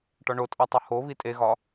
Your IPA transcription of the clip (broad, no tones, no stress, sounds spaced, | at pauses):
ʈ ɒ ɳ o tʼ ɒ tˤ u h o β i tʼ e ɣ ɒ